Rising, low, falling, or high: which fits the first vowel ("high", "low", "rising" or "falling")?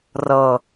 low